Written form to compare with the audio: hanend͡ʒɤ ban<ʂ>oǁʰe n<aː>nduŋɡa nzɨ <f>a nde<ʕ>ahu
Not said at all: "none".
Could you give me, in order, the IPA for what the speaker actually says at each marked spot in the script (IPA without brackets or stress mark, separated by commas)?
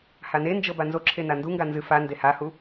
z, a, f, h